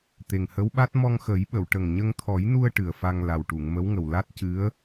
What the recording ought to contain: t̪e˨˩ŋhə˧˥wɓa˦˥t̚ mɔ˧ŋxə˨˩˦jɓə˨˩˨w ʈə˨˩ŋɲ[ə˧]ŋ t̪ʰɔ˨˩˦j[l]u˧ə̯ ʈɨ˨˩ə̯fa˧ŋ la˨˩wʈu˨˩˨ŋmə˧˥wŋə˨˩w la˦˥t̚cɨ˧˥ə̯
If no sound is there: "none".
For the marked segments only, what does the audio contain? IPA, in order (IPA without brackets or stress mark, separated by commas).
ə˧, n